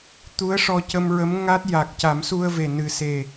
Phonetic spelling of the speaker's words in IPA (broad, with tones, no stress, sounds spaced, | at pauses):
t̪ u˧˥ ə̯ ʂ ɔ˧ c ə˧ m ɹ ə˧˥ m ŋ a˦˥ t̚ j a˨˩ k̚ c a˨˩˦ m s u˧ ə̯ v e˨˩ n ɨ˨˩ s e˨˩